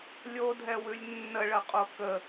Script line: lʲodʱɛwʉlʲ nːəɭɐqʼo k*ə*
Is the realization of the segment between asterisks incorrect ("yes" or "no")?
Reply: no